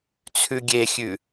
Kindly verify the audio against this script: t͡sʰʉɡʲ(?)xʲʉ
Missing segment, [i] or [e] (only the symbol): e